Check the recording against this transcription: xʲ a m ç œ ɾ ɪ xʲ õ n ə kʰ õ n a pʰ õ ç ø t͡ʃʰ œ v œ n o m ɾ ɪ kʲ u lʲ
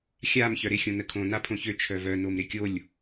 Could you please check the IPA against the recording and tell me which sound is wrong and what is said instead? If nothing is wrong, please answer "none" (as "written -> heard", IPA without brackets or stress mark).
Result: u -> o